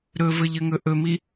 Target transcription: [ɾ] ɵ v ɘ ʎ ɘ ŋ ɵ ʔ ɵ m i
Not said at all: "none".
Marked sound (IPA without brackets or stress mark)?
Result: ɾ